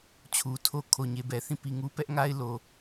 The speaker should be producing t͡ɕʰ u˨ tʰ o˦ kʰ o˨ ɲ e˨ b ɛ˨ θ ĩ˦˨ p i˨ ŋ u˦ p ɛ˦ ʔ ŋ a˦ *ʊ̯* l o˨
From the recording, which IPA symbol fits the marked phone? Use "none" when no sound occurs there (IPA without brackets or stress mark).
ɪ̯